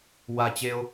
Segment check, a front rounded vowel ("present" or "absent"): absent